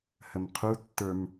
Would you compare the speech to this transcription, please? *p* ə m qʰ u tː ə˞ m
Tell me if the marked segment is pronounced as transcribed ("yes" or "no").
no